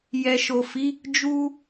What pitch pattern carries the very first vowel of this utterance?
low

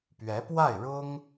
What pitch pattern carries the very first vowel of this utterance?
rising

